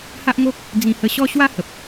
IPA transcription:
h a˦ ʔ ŋ o˦ k̚ | d͡z ĩ˧ h ə˧ ɕ ɔ˦ ɕ w a˦ h ə˨ p̚

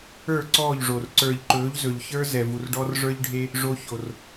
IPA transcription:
ə˞˦˨ ǀ ɔː˦˨ ʎ ʐ o˨ r ǀ ə˞˨ ʎ ǃ ɵː˨˦ ʎ z ɵ˨ ʎ ç ə˞˦ z ɛ˨ v u˨ r ɖ ɔ˦ r ʐ ə˞˦ ʎ ɖʱ e˦ | ʐ o˨ ç o˨ r

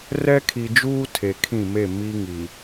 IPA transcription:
r ɛ˦ kʰ i˨ d͡ʒ uː˦ tʰ e˨ kʰ ĩ˦˨ m e˦˨ m i˦ ŋ i˨

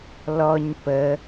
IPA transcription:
l ɔ ɲ p ə

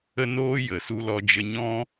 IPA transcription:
ə˦ n oː˦ j ə˨ s u˧ l ɔ˧ d͡ʒ ə˧ ɲ ɔ̃˦

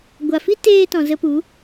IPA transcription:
ɡʷ a˨ f i˦ t eː˧ t ɔ̃˨ z ə˧ p u˨˦

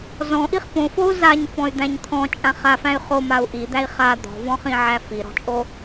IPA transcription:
z ɔ̃ ʔ i χ p õ f o u̯ z a ɲ f ɔ̃ y̯ d̪ æ̃ ɲ t̪ʰ ɔ̃ t͡ʃʼ ã χ a f æ̃ y̯ χ o m a u̯ ʔ i d̪ æ i̯ χ a d̪ ɔ̤ v ɔ̃ χ ĩ ʕ æ f i ɾ ɔ̤ t͡ʃʼ o

